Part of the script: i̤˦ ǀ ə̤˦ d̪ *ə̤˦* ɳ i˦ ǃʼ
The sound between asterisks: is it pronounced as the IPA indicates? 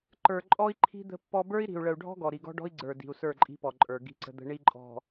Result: yes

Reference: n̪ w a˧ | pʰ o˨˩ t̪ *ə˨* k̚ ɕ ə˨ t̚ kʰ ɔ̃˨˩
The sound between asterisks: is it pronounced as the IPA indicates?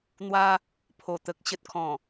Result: yes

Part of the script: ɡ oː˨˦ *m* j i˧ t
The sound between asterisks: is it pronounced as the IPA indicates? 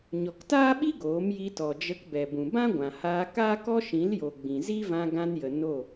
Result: yes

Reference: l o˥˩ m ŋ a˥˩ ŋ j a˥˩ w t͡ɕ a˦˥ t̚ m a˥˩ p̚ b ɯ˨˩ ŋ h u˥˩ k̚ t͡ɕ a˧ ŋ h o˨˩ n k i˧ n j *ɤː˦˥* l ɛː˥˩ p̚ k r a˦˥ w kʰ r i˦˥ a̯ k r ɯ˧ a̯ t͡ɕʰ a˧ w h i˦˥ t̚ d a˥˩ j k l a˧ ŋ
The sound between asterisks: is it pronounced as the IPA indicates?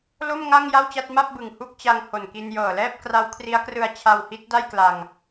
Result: no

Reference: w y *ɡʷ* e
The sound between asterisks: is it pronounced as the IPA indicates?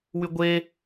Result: yes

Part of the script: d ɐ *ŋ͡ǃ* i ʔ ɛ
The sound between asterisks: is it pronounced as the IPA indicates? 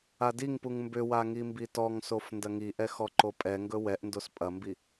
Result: no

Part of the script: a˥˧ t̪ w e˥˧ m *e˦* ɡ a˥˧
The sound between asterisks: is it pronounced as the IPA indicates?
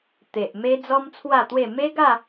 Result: yes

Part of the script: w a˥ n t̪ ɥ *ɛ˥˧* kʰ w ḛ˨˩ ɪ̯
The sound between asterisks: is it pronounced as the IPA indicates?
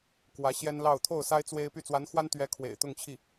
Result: no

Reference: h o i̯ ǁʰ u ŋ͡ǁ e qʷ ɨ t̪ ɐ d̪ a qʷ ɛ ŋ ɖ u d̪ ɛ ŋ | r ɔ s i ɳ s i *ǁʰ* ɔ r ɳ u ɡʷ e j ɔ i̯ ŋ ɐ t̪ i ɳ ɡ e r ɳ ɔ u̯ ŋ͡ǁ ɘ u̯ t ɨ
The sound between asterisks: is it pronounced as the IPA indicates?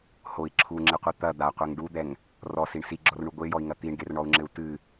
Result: no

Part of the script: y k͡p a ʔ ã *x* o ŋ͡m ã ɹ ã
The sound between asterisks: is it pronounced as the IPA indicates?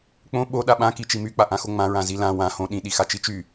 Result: yes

